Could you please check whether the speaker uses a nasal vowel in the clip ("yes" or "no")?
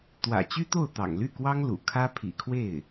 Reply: no